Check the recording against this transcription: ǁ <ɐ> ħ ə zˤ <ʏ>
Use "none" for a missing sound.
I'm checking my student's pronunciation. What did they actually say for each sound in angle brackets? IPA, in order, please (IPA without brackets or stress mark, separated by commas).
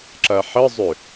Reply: ɐ, ʏ